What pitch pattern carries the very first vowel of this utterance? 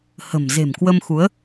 low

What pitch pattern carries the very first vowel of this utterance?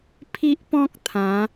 high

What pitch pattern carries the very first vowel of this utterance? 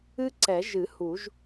high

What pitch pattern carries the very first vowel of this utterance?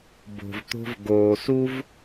low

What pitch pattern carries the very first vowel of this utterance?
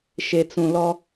low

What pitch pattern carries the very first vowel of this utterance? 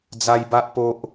high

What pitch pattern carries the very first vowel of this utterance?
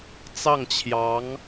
falling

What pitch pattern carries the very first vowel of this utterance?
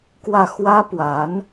falling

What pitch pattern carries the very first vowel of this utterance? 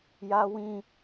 high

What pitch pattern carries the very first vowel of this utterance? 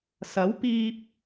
rising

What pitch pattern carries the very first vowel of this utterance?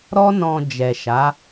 high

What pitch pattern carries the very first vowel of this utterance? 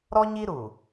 high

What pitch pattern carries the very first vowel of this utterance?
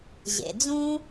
low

